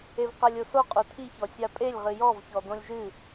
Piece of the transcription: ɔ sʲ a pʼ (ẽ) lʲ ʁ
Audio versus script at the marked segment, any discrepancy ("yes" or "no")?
yes